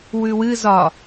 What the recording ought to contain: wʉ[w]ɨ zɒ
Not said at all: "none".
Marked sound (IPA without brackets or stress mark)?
w